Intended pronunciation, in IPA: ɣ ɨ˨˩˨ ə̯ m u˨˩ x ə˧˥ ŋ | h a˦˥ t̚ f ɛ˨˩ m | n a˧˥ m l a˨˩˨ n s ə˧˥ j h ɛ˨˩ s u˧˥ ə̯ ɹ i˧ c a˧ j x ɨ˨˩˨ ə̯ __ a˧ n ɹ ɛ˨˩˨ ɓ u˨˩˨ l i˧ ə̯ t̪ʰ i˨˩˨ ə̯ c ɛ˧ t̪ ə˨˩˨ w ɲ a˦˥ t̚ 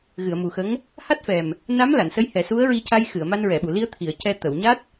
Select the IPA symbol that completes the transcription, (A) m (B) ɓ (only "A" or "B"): A